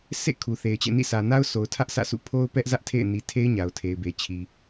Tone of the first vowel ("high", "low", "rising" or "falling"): falling